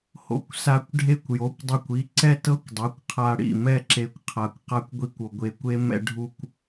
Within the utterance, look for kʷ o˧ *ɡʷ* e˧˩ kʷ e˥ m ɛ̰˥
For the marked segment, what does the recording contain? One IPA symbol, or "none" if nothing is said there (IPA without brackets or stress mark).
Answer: ɡʷ